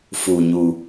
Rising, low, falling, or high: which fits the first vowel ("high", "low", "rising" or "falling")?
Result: low